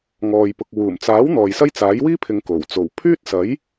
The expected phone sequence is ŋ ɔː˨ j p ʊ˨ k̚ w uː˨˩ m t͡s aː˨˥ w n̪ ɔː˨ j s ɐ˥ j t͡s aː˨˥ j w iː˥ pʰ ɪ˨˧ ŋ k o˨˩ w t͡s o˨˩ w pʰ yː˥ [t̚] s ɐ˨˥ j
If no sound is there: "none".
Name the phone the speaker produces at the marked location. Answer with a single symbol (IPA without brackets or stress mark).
t̚